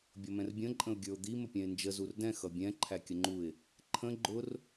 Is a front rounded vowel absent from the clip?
yes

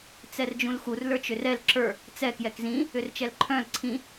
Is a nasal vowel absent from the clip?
no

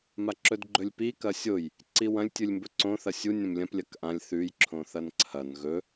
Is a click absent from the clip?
no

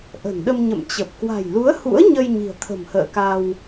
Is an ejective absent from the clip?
yes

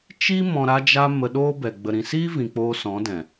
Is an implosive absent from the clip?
no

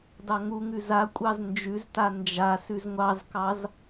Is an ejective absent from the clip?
no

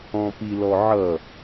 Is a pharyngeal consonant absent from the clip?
no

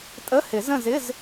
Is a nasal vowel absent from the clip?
no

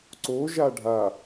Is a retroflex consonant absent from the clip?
no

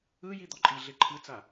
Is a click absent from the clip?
no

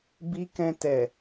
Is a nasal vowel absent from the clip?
no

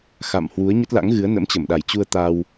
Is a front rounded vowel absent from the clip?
yes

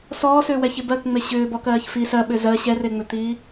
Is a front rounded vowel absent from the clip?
no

